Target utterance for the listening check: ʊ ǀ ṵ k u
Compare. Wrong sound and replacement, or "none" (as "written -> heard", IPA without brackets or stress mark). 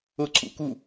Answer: none